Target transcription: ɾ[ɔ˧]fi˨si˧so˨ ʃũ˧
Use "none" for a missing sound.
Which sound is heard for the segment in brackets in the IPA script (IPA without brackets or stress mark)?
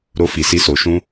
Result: o˧